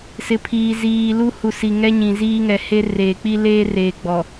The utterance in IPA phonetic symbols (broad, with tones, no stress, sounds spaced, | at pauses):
s ɪ˨ pʰ iː˨ z iː˨ l u˦ h u˨ s i˨ ŋ ɛ˦ ɲ ĩ˨ z iː˦ ŋ ɛ˨ h e˦ r eː˨ k͡p i˦ l eː˦ r eː˨ ɡ͡b ɔ˨